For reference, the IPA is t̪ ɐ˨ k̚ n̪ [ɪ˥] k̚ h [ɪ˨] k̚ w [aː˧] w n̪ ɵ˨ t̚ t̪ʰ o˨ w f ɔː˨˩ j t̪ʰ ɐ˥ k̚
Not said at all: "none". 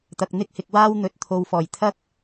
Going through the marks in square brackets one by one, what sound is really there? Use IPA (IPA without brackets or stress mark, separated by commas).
ɪ˥, ɪ˨, aː˥